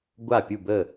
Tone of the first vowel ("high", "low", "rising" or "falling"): falling